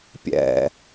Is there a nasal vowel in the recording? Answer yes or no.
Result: no